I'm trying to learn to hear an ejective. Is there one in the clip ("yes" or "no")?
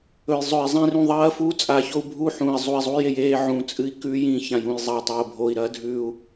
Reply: yes